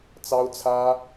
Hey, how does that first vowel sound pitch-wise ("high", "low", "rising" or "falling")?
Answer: high